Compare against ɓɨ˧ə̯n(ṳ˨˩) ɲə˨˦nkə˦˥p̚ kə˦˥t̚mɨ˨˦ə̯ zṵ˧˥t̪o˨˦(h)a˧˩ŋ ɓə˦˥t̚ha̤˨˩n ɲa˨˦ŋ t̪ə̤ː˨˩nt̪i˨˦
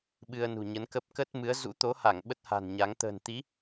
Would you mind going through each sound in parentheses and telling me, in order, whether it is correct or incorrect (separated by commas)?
correct, correct